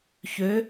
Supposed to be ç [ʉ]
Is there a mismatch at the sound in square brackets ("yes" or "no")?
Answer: yes